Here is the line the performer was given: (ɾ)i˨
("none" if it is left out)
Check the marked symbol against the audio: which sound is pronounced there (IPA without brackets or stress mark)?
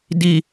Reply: d